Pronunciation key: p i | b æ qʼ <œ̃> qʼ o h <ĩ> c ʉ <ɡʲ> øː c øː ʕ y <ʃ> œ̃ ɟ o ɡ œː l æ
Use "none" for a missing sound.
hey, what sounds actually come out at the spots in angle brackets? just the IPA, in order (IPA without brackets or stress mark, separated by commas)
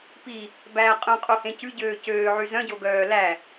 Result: œ̃, ẽ, ɟ, z